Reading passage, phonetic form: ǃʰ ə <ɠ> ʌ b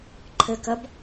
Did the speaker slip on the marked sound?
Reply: yes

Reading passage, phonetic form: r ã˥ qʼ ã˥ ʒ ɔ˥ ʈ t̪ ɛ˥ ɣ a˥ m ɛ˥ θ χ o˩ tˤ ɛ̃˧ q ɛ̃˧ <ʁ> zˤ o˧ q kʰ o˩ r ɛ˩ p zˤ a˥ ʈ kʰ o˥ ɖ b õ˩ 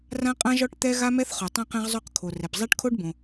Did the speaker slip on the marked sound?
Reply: no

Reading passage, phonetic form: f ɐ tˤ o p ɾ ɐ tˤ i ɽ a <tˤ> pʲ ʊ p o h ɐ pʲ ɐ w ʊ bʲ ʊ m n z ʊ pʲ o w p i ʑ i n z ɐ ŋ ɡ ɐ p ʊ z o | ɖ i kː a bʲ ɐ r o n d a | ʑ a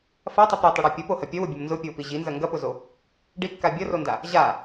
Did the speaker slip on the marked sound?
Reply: yes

